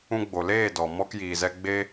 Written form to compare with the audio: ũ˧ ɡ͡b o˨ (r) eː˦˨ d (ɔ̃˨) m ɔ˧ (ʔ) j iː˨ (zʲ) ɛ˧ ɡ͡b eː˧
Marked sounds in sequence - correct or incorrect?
incorrect, incorrect, incorrect, incorrect

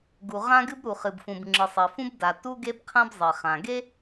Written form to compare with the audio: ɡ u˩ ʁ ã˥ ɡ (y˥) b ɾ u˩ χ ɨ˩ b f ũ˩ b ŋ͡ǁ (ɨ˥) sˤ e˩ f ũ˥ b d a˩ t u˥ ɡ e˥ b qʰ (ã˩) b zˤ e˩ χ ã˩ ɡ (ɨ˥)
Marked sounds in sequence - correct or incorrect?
incorrect, incorrect, incorrect, incorrect

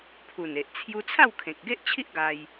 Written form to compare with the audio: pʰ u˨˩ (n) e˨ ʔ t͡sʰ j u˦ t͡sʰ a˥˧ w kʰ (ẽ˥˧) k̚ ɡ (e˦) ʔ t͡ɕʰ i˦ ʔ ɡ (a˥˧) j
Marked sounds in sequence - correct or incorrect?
correct, incorrect, correct, incorrect

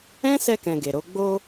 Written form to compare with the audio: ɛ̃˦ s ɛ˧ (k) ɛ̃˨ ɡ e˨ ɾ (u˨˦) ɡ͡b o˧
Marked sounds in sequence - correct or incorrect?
correct, incorrect

